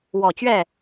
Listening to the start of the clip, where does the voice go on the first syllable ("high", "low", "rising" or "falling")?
low